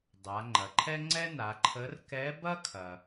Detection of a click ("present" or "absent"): present